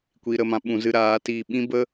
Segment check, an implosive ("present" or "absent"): present